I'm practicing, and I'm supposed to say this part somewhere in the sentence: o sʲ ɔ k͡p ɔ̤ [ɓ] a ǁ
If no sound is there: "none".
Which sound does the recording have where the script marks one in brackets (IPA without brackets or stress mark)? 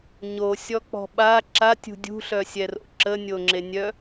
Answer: ɓ